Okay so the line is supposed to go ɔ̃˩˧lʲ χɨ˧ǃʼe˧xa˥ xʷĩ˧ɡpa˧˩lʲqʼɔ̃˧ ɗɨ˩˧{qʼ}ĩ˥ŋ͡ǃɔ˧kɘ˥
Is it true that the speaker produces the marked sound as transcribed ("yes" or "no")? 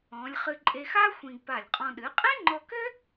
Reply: yes